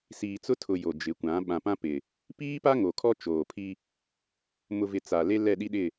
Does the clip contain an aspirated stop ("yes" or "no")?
yes